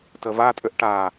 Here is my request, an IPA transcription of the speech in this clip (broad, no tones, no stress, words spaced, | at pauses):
təvatʼʏʔ ʈa